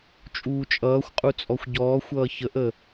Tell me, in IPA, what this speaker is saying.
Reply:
t͡ʃʼ uː t͡ʃʼ ʌː xʷ qʼ u t͡sʼ ɔ xʷ ɟ ɔː xʷ ʌː ç ə ʔ ə

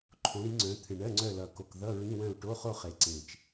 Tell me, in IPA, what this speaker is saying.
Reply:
ǃʰ õ˨˦ ɾ i˨˦ ŋ͡ǀ œ̃˨˦ t̪ʰ ɨ˨˩ ɳ ɜ˧˥˧ ŋ͡ǀ œ˦˨ l ʌ˨˩ k o˨˩ k ð ʌ˧˥˧ ɹ ĩ˧˥˧ w œ̃˦˨ u̯ ʈ o˧˥˧ χ o˦˨ χ e˨˩ ǀ ẽ˨˩ t͡ʃ

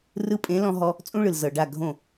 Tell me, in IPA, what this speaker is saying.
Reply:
r ɯ˧ pʼ ẽ˨˦ l ɔ̃˧ ɦ ɔ˧ | t͡sʼ ũ˦ ɭ ɯ˨ l z ɤ˨ ɖ a˦˨ ɡʱ õ˦˨

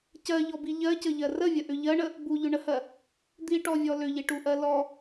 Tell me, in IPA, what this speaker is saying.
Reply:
c ɜ ʎ ɔ b i ʎ ɜ c ə ʎ ɜ r ə vʲ ə ʔ ʏ ʎ ɜ ɳ ə | b u ʎ ʏ ɳ ə h ɜ | d̪ i ʈ ɔ vʲ ɔ l ʏ ʎ i ʈ u ʔ ɜ l ɔ

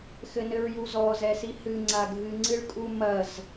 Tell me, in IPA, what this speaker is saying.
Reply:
x ɘ n ɘ ɹ j u z ɔ z ɛ s i h ɨ ŋ͡ǀ a ɡʱ ɨ ŋ͡ǀ ɨ ɭ kʼ u m ɐ z

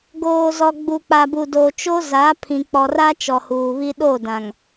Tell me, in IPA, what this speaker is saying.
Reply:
ɡ oː˨ z ɔ˨ ɡ͡b u˨ k͡p a˨ b u˨ d o˨ t͡ʃ o˦ z a˨˦ pʰ ĩ˨ k͡p ɔ˨ r a˦ t͡ʃ ɔ˨ h uː˨ β i˦ ɗ o˦˨ d ã˨ ŋ

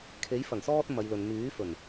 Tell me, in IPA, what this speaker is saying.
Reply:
kʰ e˨˥ j f ɐ˨˩ ŋ s ɔː˧ t̚ m ɐ˨˧ j l ɵ˨ n m yː˨˥ f ɵ˨˩ n

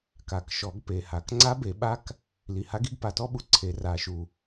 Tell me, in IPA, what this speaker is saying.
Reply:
k a˨˩˦ k ʃ ɔ˨˩˦ ɡ p e˨˩ h a˨˩ k ŋ͡ǀ a˧˥ b e˨˩˦ ɓ a˧˥ k | l i˨˩ h a˧˥ ɡ i˧˥ ɡ p a˨˩ t ɔ˧˥ ɓ u˨˩ ǀʰ e˨˩˦ r a˨˩˦ ʃ u˨˩

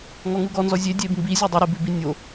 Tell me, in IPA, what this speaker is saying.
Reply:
ŋ ɔ ŋ u ɡ ɔ n z ɔ zʲ e dʲ e b m b i zʲ ʉ dˤ e ɾ i b ʉ b i nʲ o

